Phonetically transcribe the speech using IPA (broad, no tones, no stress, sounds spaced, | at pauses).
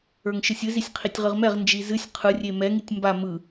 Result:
ə˞ ŋ ʃ ɨ sʲ ɨ z i sʲ qʰ i tʲ ʁ ɨ ʁ m ɛ ʁ n d͡ʒ i z ɨ sʲ qʰ ɯ rʲ e m ɛ ŋ i tʲ m b a m ɯ